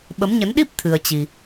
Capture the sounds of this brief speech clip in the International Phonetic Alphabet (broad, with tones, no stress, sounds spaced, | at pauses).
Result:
ɓ ə˨˦ m ɲ ə˨˦ n ɗ i˦˥ p̚ t̪ʰ ɨ˧ ə̯ t͡ɕ i˧